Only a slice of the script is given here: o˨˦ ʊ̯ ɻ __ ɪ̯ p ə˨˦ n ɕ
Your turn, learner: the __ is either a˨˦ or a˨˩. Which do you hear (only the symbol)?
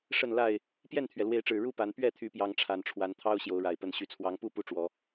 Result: a˨˩